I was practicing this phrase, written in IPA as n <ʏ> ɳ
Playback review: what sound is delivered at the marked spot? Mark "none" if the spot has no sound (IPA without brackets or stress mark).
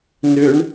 ʏ